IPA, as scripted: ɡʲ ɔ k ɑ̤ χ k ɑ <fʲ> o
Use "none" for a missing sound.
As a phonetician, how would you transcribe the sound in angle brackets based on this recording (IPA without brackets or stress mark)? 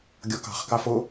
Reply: f